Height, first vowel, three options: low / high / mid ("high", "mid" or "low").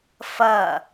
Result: low